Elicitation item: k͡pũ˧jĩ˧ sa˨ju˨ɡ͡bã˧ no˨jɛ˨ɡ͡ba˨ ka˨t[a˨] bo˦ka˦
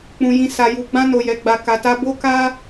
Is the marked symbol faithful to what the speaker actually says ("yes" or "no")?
no